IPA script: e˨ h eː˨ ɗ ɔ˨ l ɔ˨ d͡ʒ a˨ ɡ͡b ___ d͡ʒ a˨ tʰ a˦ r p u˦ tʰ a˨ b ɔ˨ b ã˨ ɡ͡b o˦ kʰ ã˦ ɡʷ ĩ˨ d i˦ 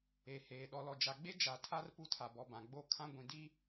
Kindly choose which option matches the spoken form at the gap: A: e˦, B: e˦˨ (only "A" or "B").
A